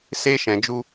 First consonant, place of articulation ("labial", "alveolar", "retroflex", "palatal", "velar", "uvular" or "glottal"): alveolar